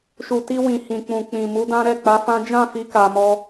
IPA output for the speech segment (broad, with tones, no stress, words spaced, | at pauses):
ʃu˨ti˧wĩ˨ hĩ˨k͡pũ˨ k͡pĩ˨ mu˨˦dã˦ ɾɛ˦˨k͡pa˨˦fã˦ d͡ʒã˦˨fi˨˦ ka˧mɔ˦